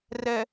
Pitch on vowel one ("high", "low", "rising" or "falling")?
low